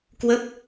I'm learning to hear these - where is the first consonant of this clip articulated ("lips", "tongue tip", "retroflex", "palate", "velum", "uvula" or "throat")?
velum